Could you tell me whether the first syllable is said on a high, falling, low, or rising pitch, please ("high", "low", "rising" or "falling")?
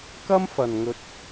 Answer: high